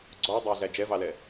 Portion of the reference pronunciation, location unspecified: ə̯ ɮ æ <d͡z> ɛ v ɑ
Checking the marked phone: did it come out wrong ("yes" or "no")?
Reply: yes